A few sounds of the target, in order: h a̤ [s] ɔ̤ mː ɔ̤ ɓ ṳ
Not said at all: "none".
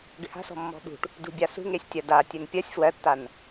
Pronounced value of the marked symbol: s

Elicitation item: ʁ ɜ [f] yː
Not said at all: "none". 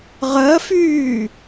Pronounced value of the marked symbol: f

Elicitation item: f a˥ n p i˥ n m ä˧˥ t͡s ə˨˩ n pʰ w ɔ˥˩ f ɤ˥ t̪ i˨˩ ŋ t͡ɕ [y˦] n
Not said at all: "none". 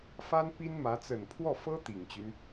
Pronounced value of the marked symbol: y˦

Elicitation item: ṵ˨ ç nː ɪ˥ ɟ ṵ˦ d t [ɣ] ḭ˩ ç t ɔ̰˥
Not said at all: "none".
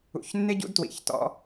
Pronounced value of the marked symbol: w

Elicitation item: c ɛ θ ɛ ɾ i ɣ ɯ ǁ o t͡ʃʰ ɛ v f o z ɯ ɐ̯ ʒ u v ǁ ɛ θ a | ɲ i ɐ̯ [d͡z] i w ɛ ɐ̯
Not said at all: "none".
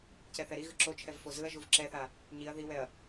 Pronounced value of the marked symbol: ð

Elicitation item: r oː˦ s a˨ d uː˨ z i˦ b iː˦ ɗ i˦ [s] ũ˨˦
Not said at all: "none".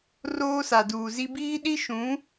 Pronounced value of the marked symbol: ʃ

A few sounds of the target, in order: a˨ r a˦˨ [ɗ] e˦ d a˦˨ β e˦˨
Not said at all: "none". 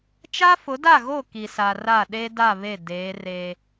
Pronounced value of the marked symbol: ɗ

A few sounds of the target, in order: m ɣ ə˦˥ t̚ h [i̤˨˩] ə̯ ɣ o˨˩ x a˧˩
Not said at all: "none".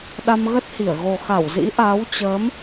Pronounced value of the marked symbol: i˧˩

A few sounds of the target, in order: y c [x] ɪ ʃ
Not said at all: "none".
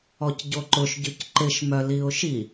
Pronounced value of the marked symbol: ǃ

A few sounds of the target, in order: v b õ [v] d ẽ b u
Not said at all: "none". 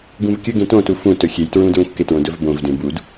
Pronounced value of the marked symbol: v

